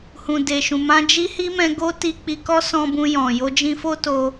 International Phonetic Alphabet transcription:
hũ˨de˨ʃũ˨ mã˧d͡ʒi˦hi˦mɛ̃˧ ɡo˦ti˧k͡pi˧kɔ˦ sɔ̃˧bũ˧ jɔ̃˨ jo˧d͡ʒĩ˧fo˦ to˧

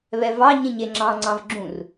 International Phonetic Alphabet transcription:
βɛvɑ ɲẽɲeŋ͡ǁɑ̃ ŋ͡ǀɑ̃vɡ͡ǁũr

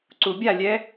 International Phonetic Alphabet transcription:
ǀubʲalʲɛ

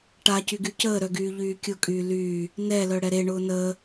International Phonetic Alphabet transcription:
ʈacy ɡycəːɾœ ɡyːʎyːkʲʊkʼyː lyː | nɛlœ ɽɛɾeɳʊː nəː

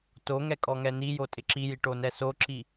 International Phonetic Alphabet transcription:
toŋɛ kʼɔŋɛnijo tʼɪǁiji ʈonɛsoǁi

